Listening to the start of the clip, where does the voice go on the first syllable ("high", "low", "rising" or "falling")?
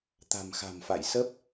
low